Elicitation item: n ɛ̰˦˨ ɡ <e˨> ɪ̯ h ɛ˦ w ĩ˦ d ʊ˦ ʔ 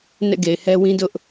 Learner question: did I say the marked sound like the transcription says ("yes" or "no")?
yes